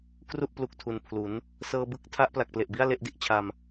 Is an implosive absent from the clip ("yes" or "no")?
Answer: yes